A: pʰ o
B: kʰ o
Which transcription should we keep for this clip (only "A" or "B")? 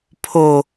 A